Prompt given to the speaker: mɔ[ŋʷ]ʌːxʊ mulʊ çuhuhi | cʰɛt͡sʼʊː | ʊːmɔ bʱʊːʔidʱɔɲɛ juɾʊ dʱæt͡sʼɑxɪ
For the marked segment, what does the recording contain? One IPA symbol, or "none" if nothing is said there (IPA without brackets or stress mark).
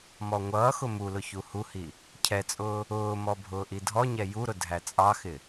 ŋʷ